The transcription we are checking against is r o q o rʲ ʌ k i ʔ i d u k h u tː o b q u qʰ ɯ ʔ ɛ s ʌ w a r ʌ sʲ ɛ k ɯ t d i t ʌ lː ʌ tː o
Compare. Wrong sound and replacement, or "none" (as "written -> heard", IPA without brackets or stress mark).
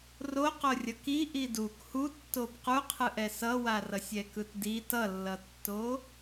none